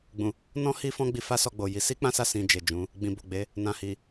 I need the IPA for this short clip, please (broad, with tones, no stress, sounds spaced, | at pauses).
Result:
ɡ͡b ũ˨ | n ɔ̃˦ h i˦ f ɔ̃˦ ɡ͡b i˧ f a˦ s ɔ˧ ɡ͡b o˨ j i˨˦ s i˦ k͡p ã˦ s a˦˨ s ĩ˧ d͡ʒ e˨ d͡ʒ ũ˨˦ | ɡ͡b ĩ˨ b o˨ ɡ͡b e˨˦ | n ã˨ h i˨